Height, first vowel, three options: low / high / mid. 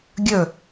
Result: mid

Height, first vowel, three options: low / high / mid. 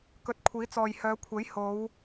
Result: mid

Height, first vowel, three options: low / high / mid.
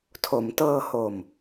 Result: mid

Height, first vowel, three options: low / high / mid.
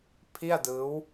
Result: high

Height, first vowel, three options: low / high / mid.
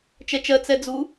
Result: mid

